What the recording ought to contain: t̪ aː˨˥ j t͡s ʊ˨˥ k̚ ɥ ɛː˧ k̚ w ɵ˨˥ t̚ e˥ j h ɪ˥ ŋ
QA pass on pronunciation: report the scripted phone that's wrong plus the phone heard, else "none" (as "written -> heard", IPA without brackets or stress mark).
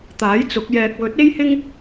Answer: ɥ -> j